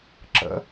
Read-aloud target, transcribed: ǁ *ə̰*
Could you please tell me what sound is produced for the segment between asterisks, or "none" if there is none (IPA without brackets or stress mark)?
ə̰